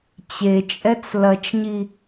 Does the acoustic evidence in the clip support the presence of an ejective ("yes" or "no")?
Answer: yes